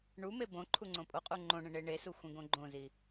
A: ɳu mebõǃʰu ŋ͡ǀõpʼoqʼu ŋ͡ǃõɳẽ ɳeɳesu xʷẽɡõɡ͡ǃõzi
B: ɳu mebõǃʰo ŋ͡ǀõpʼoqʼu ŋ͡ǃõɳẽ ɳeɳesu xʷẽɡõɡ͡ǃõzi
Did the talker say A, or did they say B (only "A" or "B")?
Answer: A